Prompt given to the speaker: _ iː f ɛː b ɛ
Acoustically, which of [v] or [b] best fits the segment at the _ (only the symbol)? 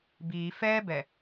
b